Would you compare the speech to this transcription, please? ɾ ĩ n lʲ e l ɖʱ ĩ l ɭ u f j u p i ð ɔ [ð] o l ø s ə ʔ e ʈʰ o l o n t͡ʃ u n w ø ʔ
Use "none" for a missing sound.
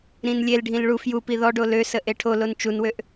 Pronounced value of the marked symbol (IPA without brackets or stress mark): ɖ